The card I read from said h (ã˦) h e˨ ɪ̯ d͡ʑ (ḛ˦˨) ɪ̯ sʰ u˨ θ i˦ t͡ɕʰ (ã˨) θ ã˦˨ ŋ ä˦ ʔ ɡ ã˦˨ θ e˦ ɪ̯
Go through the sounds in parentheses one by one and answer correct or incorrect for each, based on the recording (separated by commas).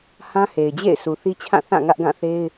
correct, correct, incorrect